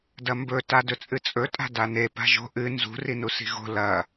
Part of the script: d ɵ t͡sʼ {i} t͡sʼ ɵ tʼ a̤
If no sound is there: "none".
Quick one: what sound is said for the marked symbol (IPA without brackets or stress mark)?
ɨ